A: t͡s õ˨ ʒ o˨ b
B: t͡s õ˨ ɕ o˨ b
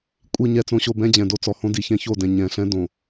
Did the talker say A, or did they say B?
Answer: B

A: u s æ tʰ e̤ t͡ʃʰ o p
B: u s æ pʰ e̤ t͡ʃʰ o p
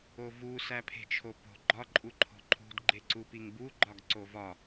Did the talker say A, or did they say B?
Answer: B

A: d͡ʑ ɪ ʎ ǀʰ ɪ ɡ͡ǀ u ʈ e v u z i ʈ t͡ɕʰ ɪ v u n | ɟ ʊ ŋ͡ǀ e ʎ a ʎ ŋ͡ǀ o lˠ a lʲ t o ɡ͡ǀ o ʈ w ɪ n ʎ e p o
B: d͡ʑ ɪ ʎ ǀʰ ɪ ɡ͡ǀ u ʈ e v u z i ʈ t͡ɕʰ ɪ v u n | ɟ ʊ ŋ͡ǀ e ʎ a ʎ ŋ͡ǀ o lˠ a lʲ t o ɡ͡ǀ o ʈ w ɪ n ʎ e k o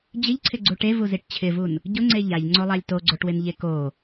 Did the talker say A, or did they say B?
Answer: B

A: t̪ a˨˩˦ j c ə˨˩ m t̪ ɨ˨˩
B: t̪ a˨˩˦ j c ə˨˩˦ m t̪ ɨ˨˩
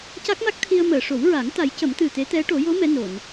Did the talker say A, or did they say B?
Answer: B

